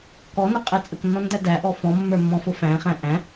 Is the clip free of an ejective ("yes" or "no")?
no